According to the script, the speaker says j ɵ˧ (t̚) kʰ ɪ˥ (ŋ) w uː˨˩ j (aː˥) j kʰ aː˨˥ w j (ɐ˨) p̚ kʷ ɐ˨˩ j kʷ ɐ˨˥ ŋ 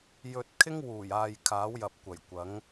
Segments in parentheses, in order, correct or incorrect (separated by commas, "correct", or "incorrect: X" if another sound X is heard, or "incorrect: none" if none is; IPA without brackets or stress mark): correct, correct, incorrect: aː˨, correct